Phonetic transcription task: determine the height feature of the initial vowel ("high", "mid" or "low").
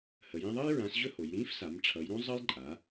mid